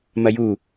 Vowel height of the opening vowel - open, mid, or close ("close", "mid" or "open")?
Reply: open